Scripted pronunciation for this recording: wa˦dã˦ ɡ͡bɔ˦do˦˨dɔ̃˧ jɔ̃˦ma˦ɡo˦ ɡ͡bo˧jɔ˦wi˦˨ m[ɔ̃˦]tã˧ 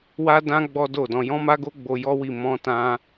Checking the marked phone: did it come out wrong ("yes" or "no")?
yes